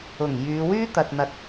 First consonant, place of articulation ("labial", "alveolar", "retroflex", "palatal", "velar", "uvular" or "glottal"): velar